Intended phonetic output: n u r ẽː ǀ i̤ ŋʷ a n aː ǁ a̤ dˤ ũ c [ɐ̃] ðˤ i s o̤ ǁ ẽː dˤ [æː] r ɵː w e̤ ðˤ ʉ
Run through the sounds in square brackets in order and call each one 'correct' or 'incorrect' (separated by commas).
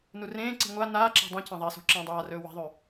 correct, incorrect